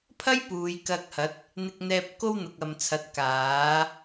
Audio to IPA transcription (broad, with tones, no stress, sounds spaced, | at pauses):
pʰ ɐ˥ j p uː˨˧ j k ɐ˧ k̚ h ɐ˨˥ t̚ | n̪ ɪ˧ k̚ n̪ ɛː˧ p̚ k o˥ w n̪ ʊ˨ k̚ ɐ˨ m t͡sʰ ɐ˨˥ t̚ k aː˨˥